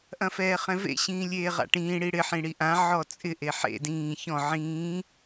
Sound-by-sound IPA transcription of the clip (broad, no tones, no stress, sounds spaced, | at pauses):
ʔ ɐ̃ f ɛː χ ɛ̃ v ḛ ɕ ĩː lʲ eː ʁ a̰ ʈ ĩː ɽ i ɽ ɪ ħ ĩ ɽ i ʔ ã ʕ ɔ t͡sʼ ɪ ʔ e ħ ḛ d ĩː ç ɔ̃ ʕ ĩː